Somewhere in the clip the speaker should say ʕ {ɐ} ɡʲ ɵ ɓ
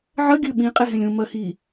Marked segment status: correct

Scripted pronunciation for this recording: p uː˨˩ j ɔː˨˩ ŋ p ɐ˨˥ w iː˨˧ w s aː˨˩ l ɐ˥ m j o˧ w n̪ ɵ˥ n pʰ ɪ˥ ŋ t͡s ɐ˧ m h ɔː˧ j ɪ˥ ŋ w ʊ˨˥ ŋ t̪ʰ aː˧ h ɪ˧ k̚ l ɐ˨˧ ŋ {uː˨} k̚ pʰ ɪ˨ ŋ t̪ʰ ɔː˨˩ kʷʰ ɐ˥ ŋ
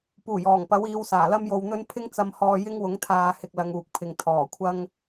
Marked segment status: correct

